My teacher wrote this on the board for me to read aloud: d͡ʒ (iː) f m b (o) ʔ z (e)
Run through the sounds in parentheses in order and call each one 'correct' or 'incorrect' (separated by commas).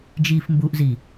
correct, incorrect, incorrect